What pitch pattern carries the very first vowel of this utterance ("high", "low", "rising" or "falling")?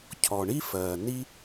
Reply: low